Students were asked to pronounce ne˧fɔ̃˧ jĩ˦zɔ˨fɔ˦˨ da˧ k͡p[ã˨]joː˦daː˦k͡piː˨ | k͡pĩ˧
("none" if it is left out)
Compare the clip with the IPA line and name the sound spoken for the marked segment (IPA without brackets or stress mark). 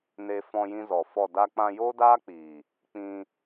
ã˧